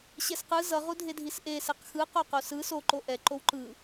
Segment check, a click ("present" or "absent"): present